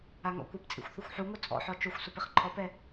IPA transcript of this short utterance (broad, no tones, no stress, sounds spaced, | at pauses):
a ŋ ɔ̰ kʷ ɪ p t͡sʼ ḭ xʷ θ ʊ xʷ ħ u ŋ ʊ t͡sʼ ɔ̰ ħ ɔ t͡ʃ o xʷ s ʊ p ɪ χ ǃʰ ɔ p ɛ